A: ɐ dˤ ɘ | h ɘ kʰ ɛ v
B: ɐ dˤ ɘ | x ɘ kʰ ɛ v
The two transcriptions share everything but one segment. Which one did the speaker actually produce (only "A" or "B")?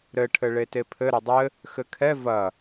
B